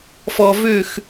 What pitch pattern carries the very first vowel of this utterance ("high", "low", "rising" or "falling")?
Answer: low